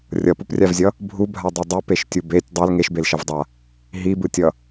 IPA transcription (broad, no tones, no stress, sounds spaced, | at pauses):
rʲ ʌ p u p rʲ a v zʲ ʌ | bʱ u bʱ a dˤ e dˤ u p e ʃ tʲ u b e tʲ dˤ ɛ l ŋ e ʃ b e l ʃ ʌ v dˤ a | ɦ i b ɯ tʲ ʌ